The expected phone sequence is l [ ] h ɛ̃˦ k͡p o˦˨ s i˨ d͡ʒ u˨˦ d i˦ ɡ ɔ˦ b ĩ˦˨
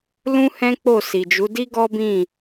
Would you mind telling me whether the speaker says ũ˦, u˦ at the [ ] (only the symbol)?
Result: ũ˦